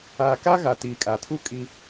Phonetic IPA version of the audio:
aː˨ka˦ɣa˨ tiː˨kʼa˨tʰu˦ kʼi˦

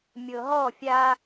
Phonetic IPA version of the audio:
mʲɤɦɔ fʲa

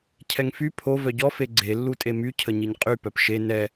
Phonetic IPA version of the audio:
cʰɛŋfy pʰo vœɟɔ feɡ͡ǀe lːutʼemy cʰəɲiɲqʼy pœpʃe nɛ

